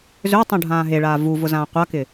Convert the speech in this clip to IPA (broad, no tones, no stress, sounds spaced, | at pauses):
z ø tˤ ũ ɖʱ ãː ɦ e ɭ aː v u v ʊ z ãː qʷ a k ɪ